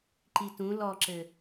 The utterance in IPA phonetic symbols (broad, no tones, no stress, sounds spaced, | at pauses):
ǃ i t ũ l ɔ ǁ ɘ